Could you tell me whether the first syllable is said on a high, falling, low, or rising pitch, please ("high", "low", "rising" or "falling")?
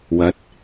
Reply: rising